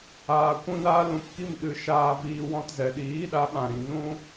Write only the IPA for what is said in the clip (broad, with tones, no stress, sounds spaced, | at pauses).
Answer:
aː˧ kʷ ũ˦ n aː˦ l ũ˧ p k i˦˨ m ɗ ɨ˧ ʃ aː˧ v iː˧ w ɔ̃˧ t z ɛ˨ ɗ iː˨˦ ɗ a˨˦ ɓ ã˨ ɾ ĩ˨ n ũ˦